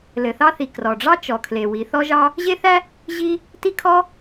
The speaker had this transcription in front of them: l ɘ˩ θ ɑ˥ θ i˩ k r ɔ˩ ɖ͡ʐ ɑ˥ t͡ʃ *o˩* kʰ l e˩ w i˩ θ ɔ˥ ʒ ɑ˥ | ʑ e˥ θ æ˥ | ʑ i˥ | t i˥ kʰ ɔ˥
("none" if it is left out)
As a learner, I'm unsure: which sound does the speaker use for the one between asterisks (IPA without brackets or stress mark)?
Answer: ɔ˩